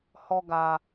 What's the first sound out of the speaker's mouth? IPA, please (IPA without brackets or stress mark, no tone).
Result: h